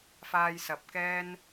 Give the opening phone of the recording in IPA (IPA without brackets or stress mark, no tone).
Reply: f